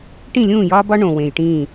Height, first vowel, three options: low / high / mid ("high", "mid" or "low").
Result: high